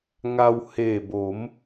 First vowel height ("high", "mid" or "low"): low